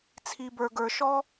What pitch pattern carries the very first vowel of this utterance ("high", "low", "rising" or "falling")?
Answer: low